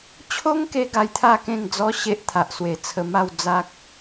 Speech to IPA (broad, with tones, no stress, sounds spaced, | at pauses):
t͡ɕʰ o˦ ŋ k e˧ ɡ a˧ j t̪ʰ a˥˧ k ẽ˥˧ ŋ d͡z ɔ˦ ɕ e˦ ʔ t̪ʰ a˨ ʔ s w e˨˩ t͡sʰ ə˧ m a˥˧ w d͡z a˦ k̚